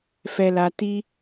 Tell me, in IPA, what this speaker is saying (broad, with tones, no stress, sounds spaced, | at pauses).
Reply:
f ɛ˧ l a˧ t i˦